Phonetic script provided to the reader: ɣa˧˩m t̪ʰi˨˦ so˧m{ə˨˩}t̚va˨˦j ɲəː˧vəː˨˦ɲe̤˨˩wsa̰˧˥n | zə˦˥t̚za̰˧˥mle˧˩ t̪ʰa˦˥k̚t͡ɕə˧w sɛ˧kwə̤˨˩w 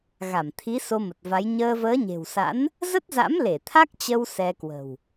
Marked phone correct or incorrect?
correct